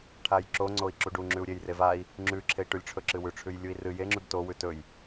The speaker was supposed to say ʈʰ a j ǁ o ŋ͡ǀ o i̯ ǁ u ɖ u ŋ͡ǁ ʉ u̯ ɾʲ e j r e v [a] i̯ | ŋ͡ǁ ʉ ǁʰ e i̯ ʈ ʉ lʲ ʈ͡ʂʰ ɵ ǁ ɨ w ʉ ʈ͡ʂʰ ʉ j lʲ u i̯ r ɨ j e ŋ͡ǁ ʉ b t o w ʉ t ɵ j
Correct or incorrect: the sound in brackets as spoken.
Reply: correct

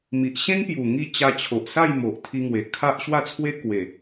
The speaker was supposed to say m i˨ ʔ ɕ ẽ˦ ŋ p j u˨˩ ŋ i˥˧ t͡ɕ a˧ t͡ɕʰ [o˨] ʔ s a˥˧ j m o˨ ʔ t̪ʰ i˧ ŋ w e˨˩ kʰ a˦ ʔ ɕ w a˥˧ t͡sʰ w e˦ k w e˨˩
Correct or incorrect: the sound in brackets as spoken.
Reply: correct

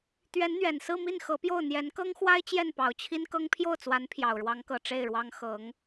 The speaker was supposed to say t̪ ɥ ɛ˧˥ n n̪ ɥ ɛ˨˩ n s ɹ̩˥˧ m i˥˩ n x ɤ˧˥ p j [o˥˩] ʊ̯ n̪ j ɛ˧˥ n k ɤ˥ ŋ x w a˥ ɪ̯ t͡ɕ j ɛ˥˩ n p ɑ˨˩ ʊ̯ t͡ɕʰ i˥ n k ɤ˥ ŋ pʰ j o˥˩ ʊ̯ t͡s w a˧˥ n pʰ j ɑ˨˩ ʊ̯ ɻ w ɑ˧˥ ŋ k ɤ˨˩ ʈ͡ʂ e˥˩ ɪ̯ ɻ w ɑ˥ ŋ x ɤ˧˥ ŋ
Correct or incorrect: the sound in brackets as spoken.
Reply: correct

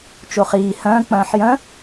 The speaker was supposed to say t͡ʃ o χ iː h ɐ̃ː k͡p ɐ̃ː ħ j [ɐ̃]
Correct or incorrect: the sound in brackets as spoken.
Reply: correct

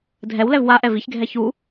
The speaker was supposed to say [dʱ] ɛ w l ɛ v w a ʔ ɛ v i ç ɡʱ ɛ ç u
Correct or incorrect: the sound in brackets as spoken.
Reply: correct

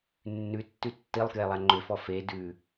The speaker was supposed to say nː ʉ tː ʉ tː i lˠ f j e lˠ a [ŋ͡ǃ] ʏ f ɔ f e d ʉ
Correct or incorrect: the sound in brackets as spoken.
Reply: correct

